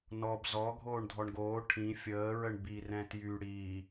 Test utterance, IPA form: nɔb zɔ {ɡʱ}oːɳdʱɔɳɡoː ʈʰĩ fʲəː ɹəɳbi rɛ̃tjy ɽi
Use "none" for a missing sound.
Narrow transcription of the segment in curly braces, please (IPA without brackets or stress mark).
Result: ɡʱ